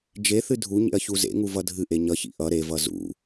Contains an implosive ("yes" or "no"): no